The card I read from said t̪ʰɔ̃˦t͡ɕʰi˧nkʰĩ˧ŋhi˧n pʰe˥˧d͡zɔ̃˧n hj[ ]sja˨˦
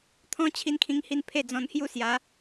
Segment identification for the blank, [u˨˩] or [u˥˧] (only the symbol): u˥˧